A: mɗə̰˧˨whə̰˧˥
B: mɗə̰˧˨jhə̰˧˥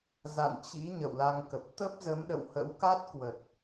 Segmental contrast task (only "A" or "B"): A